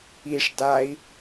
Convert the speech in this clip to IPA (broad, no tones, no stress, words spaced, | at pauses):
iʂ dai̯